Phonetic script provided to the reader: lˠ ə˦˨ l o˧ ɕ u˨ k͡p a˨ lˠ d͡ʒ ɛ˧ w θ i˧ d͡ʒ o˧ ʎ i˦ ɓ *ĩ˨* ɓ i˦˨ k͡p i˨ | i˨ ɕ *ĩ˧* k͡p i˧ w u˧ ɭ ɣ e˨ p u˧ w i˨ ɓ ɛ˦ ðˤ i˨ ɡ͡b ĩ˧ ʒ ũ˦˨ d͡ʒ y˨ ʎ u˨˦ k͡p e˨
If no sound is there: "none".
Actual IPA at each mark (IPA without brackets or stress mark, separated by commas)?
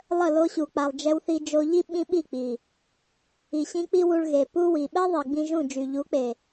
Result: ĩ˦, ĩ˧